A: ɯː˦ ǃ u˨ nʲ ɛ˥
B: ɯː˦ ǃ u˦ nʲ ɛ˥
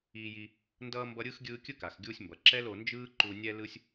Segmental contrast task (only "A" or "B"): A